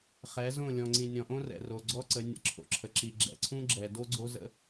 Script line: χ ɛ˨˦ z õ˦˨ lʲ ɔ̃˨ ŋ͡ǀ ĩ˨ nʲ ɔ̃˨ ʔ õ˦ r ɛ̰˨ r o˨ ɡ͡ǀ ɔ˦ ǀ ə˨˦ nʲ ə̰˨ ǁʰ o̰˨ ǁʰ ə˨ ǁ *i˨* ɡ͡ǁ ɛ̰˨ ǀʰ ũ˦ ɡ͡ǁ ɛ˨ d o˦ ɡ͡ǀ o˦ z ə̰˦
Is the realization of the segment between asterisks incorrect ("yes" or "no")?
no